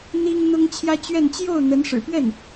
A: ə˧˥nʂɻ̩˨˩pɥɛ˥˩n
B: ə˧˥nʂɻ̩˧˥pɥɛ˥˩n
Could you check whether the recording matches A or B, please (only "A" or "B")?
A